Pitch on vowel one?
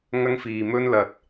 high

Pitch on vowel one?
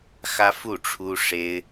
high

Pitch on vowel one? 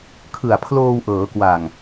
low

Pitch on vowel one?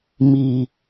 low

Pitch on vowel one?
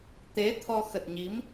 rising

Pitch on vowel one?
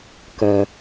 low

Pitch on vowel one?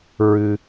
high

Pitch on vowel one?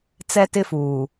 high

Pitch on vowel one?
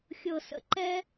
low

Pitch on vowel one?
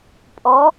rising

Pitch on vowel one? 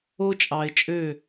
high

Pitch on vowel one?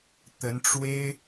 rising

